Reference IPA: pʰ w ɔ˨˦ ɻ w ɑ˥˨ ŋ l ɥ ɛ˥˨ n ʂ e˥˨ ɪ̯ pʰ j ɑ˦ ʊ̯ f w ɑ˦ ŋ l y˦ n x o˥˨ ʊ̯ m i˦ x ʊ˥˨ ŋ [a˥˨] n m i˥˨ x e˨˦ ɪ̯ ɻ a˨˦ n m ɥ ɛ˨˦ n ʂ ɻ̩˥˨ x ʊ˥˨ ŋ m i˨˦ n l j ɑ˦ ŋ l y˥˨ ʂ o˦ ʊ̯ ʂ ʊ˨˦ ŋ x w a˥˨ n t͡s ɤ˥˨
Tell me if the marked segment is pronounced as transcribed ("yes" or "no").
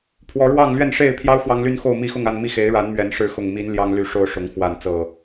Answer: yes